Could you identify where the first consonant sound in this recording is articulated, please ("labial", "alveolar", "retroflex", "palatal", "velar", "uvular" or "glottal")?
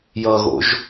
palatal